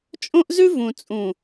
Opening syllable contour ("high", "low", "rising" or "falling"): high